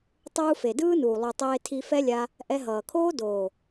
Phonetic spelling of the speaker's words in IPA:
tˤuː˧fe˨dɯː˦nuː˨ lˠu˨tˤeː˧tʰi˧ fɛ˦lʲa˧ | ʔɛ˧ɦʌː˨kʰoː˦ doː˨

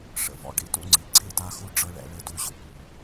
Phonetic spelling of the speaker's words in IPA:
ʂə̰˨vɔ̰˨ ɖḭ˦tṵ˦ŋ͡ǀi˨ ǀʰi˦˨ta˦xu˦ ɖ͡ʐɤ˦ɭɛ̰˦ ɭə˦du˦˨ʑu˨pu˨

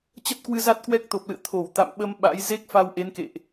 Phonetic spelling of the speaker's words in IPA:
t͡ɕə˦˥t̚kwɨ˧ za˦˥t̚kwɛ˦˥k̚t̪o˨˩p̚lɨ̰˧˨ə̯ t̪ʰo˧˩wt̪a̰˧˨mɓə˧m ɓa̰˧˥j ze˦˥k̚fa˧w ʔe˨˦nkḛ˧˨ʔ

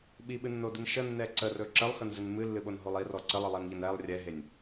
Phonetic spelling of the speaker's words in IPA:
ɓiɓɨnːodɨn ʃənːɛ ǀərɵ ǁəlˠxənzɨn mɨlːɨɓonɦolˠ irɔ ǀəlˠɨlˠɛnʎən ɛlˠ rʲɛɦenʲ

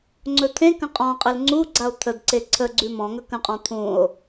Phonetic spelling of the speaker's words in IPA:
ŋ͡ǀɵt̪ʰẽkə̃ qʼɔ̃qʼɘl ŋ͡ǀuɡ͡ǀao̯ t̪ʰədǀe ǀʰəɡ͡ǀʉ mɔ̃ ŋɵkə̃qʼɔ̃ t̪ʰũo̯

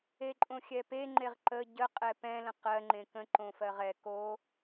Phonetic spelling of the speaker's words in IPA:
eǃʼõxʲɛpe ŋ͡ǃeʁǃə ɟə qʼɛpɛ̃ lə̃qɜ ŋ͡ǃẽkə̃ ǃõfɜʁɛ ko

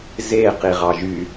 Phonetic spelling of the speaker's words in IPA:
ze qiʁɑʒy

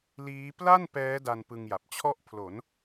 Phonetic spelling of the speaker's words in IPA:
liː˦˥ pla˥˩n pɛː˦˥ da˧n pɯ˧ŋja˨˩p̚ t͡ɕʰɔ˥˩ʔpʰlo˩˦n

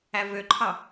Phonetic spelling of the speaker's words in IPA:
ævøǃʰɑ

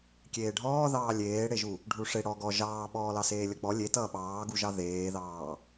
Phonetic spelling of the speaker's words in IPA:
kʲeːɖʱɔːðɑː lʲeːɽeʒu | ɖʱuʂe ɽɔ ɡɔ ʒɑːɓɔː lɑseːlʲʌk͡pɔ lʲetʌː ɓɑːɡuʒɑ ðeːðɑː

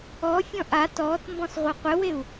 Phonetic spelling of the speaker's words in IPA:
ɔfʲɔ̃ ʔat ɔt mbɔ̃sʁʷɘqʷɘweu̯

